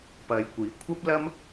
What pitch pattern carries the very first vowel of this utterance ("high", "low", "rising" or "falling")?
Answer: low